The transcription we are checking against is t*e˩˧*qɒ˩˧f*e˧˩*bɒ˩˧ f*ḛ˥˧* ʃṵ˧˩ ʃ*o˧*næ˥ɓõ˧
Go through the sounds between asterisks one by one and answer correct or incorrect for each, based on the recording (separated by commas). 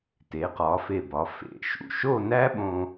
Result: correct, correct, incorrect, incorrect